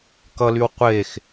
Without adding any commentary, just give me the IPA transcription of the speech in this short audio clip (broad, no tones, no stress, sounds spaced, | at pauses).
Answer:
k ʌ l y w qʷ e x